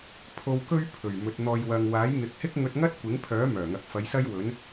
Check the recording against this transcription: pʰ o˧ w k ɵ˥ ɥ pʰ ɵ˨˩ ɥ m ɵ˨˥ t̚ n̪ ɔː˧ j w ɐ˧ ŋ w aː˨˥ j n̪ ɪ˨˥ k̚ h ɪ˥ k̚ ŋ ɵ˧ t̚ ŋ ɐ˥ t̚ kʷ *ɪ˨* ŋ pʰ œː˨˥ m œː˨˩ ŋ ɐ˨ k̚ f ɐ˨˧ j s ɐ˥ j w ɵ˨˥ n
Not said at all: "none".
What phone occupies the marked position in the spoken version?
ɪ˨˥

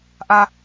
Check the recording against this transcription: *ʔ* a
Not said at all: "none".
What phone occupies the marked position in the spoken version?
ʔ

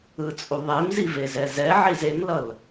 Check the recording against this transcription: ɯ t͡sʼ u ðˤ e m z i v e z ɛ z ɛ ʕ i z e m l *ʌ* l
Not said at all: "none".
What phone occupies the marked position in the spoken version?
ʌ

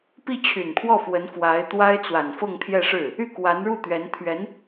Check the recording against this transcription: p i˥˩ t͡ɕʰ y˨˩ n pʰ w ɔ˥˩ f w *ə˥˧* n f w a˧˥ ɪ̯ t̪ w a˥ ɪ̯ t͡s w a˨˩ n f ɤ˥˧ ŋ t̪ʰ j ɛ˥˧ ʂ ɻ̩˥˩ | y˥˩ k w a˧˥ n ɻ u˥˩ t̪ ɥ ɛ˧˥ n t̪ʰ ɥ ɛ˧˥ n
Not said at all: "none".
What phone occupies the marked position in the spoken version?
ə˧˥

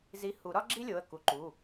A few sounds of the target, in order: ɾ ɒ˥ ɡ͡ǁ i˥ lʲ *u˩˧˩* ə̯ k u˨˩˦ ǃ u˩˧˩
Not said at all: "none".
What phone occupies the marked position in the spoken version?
o˩˧˩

